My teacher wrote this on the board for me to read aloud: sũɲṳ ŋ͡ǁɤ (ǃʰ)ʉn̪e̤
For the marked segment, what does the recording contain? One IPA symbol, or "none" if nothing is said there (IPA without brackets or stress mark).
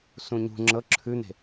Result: ǁʰ